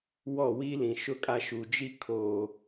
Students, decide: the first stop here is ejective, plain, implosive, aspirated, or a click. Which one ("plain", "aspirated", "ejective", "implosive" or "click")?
ejective